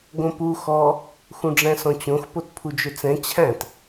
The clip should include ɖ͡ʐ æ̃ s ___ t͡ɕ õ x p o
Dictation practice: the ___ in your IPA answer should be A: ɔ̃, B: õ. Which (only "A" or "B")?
A